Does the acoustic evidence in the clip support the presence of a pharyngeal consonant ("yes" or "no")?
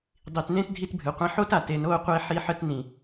yes